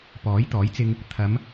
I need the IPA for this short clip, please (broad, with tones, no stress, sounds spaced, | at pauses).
p ɔː˨˥ j t̪ ɔː˨˥ j t͡s ɪ˧ ŋ | t̪ʰ ɐ˨˧ m